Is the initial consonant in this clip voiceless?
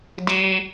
no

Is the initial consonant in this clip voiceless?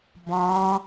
no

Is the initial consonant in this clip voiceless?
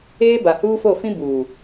no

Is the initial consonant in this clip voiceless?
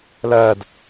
no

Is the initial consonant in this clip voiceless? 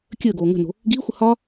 yes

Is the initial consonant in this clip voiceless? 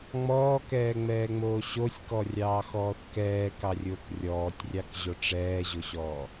no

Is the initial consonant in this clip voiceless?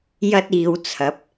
no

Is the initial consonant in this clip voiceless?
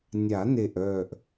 no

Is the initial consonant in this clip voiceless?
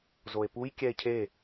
no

